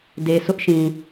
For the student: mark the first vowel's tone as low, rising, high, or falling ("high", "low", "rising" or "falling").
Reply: low